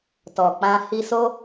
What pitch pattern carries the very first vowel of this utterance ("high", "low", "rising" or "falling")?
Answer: low